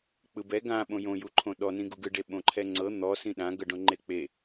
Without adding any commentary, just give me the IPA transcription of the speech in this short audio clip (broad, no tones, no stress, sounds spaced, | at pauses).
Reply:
k͡p ɯ b ɛ ɡ ã ɓ õ j õ j u ǃʰ õ ɗ ɔ n ĩ ɡ u ɡ ɯ ɖ e ɓ õ ǃʰ ɛ ŋ͡ǀ ɤ n̪ ɔ s ĩ ɗ ã ɡ ɤ ɖ õ ŋ͡ǃ e k͡p e